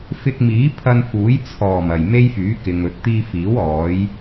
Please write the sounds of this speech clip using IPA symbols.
f ɪ˧ k̚ m iː˨˥ pʰ ɐ˧ n f uː˨˥ j t͡sʰ ɔː˨˩ m ɐ˨˩ j m e˥ j f yː˨˥ k ɪ˨ ŋ ɵ˨˥ t̚ t̪ iː˧ f iː˨˥ w ɔː˨˥ j

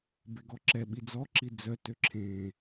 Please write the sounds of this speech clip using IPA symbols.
b e ɡ ɔ ǁ ɛ ɓ i d͡z ɔ ǁ i d͡z œ t ø ǁʰ ẽ

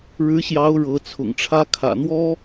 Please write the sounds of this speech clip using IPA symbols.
ɻ ɻ̩˧˥ ɕ j ɑ˧˥ ʊ̯ ɻ ɤ˧˥ t͡sʰ ʊ̰˨˩ ŋ ʈ͡ʂʰ ä˥ kʰ ä̰˨˩ n̪ w ɔ˥

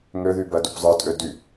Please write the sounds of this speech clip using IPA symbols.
ŋ ø ð y b ɜ d u p zˤ ə˞ tʼ ø d y

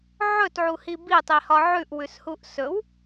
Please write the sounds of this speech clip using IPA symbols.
ʕ ɵ t ʕ u h i b i tˤ i h ɒ ʕ ʉ ʔ w ʉ s h u ʔ s ɵ w

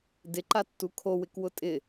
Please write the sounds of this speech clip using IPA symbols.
d ɪ ǃ a tː u kʰ o w ɪ k w ʊ tʼ ɪ

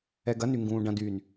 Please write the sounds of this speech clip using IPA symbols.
ɛ ɡ ɐ n y ŋ ɡ ũː ɖ ɐ̃ d yː n

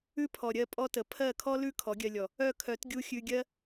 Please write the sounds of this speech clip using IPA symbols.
ʉ˦ pʰ ɔ˨ ɾʲ ɜ˧ pʼ ɔ˦ t ə˨ pʰ ɜ˦˨ kʰ ɔ˦ l ʉ˦ kʰ ɔ˨˦ ɡʲ ɜ˧ lʲ ɔ˨ | œ˦˨ kʰ œ˨˦ t ɡʲ u˦ xʲ ʉ˧ ɡʲ ɜ˦

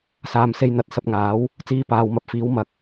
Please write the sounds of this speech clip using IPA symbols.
s aː˨ m s e˧ j n̪ ɐ˨ t̚ s ɐ˧ p̚ ŋ aː˨˥ w | t͡s iː˧ p aː˨ w m ɐ˨˥ p̚ f iː˨˥ w m ɐ˨ k̚

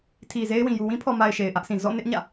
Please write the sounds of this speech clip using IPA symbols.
tʰ i˨ z e˦ ɪ̯ w ĩ˨ j u˨ w ĩ˦ pʰ ɔ˨ m a˨ ɪ̯ ʃ e˨ ɪ̯ ʔ ä˦ ʔ sʰ ĩ˨ z ɔ̰˦˨ n ɪ˦ ʔ ɲ ä̰˦˨

